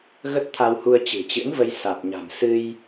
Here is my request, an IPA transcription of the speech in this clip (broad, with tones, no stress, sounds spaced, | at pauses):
ɣ ə˦˥ t̚ t̪ʰ a˧ w h u˧ ə̯ t͡ɕ ɨ̤˨˩ t͡ɕ ɨ̰˧˥ n v ə˧ j s a˨˩ t̚ ɲ a̤˨˩ m s ɨ˧ j